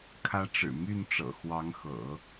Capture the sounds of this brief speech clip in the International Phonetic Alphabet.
kʰ ä˧˥ ʈ͡ʂ ɻ̩˨˩ m y˥˩ n ʈ͡ʂ ɤ̰˨˩ x w ɑ˧˥ ŋ x ɤ̰˨˩˦

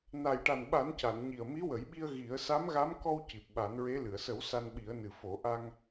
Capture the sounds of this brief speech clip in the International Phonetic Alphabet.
n a˨˩ j ʈ a˨˩ n ɓ a˨˩˦ n c a˨˩˨ n ɲ i˨˩ ə̯ m i˧˥ w ə˨˩˦ j ɓ i˧ ə̯ ɣ i˨˩˦ ə̯ s a˧˥ m ɣ a˧˥ m k ɔ˧ w c i˨˩ p̚ ɓ a˨˩˦ n ɹ e˧˥ l ɨ˨˩˨ ə̯ s ə˨˩˦ w s a˧ n ɓ i˨˩˦ ə̯ n ɨ˨˩ f o˨˩˦ ʔ a˧ ŋ

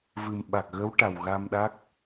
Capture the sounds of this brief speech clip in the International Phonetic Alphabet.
v ɨ˨˩ m ɓ a˨˩ k̚ ɣ ə˧˥ w ʈ a˨˩ w ɣ a˧ m ɗ a˦˥ k̚

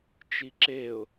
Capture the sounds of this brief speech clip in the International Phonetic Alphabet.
t͡ʃ i ǁ e ʊ̯

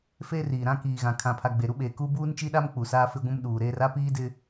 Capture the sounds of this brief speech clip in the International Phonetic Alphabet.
f eː˦ r iː˨ ɾ ã˦ k iː˨ ɣ ã˨ kʰ ã˨ pʰ a˨ ɡ͡b e˨ ɾ u˦ ɓ eː˨ k u˦ b uː˦ n t͡ʃ i˦ ɗ a˦ m k͡p u˨ s aː˦ f ɪ˦ ɡʷ ũ˦ m ɗ uː˨ ɾ eː˦ r a˦ p iː˦ d ɪ˦

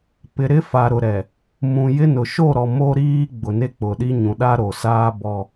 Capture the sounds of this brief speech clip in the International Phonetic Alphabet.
p ɪ˨ ɾ ɪ˦ f a˨ ɾ ʊ˨ ɾ ɛ˨ | m ũ˨ j ɪ˦ n ʊ˨ ʃ o˦˨ ɾ ɔ˨ m o˦ ɾ iː˦ ɡ͡b ʊ˨ n e˦ k͡p ʊ˨ ɗ i˦ ɲ ũ˨ ɗ a˦ ɾ o˨ s aː˦ b ɔ˦

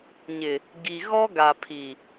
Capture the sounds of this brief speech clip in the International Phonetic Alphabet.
ɲ ɪ˨ | ɡ i˨ ɣ ɔ˦ ɡ a˨ pʰ i˨

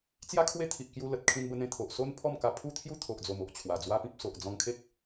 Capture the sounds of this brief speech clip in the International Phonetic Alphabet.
t͡s j a˦ kʰ w e˦ t̪ʰ i˨ ʔ k j u˧ l ə˨ t̚ kʰ ĩ˧ n b ə˧ n̪ ẽ˧ t̪ʰ o˨ ʔ s o˦ n pʰ ɔ˥˧ m k a˧ pʰ u˦ t̪ʰ j u˥˧ t̪ʰ o˨ ʔ d͡z o˨˩ m o˨ ʔ t͡ɕʰ w a˨˩ d͡z w a˦ p ĩ˦ p̚ s o˨ ʔ d͡z ɔ̃˧ ŋ kʰ e˦ k̚

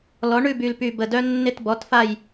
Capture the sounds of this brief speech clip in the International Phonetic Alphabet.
l ɔ˩˥ ɳ ʉ˦˨ b y˨˩ l p y˨˩ b ə˨˩ d œ˦ nː ɪ˦˨ t b ɔ˩˥ t f a˦˨ j

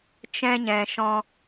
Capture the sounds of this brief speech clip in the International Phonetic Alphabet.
t͡ʃ ɛ̃˧ ɲ ɛ̃˨ ʃ ɔ̃˧

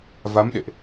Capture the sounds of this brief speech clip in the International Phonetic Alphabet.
v a˨˦ m ɗ ḛ˧˨ ʔ

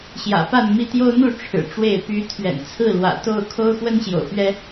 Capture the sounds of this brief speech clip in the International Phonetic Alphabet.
ɕ j ä̰˨˩ p a˥˨ n m i˥˨ t̪ j o˦ ʊ̯ n̪ u˥˨ ʈ͡ʂʰ ɻ̩˨˩ ʈ͡ʂ w e˥˨ ɪ̯ p y˨˦ t̪ʰ ɥ ɛ̰˨˩ n t͡sʰ ɹ̩˥˨ l w ä̰˨˩ t̪ o˥˨ ʊ̯ kʰ o˦ ʊ̯ x w ə˦ n ɕ j o̰˨˩ ʊ̯ p ɥ ɛ˦

